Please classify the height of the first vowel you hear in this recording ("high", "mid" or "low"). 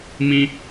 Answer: high